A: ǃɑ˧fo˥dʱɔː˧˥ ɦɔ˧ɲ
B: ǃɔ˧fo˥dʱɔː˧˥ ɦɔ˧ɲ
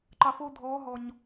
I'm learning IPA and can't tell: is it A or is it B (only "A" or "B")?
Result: A